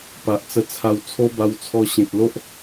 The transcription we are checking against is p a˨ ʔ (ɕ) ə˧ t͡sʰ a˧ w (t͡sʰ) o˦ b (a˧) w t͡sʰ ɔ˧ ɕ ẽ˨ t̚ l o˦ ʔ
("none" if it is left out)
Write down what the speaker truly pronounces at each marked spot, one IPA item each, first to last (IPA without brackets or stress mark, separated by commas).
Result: t͡s, t͡sʰ, a˧